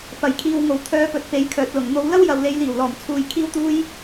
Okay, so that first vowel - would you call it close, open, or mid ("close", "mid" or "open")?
open